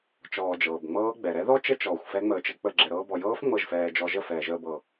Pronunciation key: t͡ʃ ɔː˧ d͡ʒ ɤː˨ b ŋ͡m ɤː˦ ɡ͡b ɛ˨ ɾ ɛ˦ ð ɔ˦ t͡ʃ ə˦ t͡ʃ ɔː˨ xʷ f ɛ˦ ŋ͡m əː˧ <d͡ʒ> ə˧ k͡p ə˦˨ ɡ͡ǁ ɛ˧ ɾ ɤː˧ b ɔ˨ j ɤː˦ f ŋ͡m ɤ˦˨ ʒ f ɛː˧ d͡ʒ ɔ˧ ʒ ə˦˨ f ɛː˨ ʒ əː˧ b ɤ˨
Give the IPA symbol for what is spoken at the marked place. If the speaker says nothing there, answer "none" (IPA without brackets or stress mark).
t͡ʃ